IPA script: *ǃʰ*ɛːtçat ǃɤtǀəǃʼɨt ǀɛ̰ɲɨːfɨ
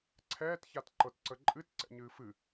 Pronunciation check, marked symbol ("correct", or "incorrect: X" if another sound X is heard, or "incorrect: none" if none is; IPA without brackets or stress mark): incorrect: ǀʰ